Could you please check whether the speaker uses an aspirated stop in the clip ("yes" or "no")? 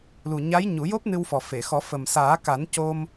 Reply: no